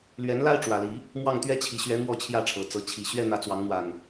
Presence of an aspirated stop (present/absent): present